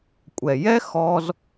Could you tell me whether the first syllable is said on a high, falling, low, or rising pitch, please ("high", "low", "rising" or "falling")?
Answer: low